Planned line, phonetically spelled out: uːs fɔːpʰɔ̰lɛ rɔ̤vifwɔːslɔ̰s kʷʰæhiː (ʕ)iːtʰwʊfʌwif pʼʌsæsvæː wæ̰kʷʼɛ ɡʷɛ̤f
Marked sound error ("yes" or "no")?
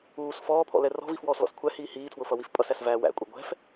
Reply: yes